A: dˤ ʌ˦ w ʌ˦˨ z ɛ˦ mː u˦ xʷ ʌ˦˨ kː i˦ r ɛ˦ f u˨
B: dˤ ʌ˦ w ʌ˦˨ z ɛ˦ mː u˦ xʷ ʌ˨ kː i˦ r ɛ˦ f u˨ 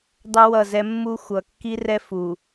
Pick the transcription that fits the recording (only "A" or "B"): B